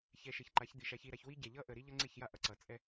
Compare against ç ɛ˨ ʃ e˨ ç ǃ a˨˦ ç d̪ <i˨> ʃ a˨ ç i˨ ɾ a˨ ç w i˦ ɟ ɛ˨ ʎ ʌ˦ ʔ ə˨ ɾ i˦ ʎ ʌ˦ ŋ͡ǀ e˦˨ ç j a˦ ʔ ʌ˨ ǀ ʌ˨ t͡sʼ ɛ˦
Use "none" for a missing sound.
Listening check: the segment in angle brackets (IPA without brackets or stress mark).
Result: i˨